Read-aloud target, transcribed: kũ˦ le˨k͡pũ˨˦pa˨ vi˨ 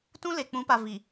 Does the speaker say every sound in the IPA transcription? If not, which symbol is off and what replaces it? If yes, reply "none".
k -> t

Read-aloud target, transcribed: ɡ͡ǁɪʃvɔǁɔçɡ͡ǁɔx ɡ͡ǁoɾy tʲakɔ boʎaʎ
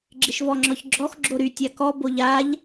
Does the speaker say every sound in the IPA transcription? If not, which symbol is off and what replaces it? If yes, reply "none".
ǁ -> ŋ͡ǁ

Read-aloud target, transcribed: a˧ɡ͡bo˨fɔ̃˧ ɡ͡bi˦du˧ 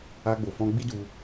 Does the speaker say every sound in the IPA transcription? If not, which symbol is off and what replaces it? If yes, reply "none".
none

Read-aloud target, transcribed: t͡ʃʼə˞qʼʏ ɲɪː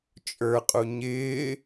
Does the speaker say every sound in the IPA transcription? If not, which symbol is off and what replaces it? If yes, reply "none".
ʏ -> u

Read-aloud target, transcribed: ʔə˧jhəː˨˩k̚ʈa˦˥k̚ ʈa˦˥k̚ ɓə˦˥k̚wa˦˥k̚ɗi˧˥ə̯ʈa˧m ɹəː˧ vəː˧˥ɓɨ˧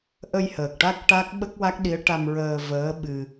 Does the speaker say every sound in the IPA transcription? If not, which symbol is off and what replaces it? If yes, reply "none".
none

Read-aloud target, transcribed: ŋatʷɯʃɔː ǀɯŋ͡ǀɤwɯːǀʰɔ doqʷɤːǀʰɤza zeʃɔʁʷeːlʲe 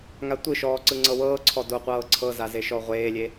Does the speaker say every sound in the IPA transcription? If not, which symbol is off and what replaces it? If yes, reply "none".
ɯː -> ɤː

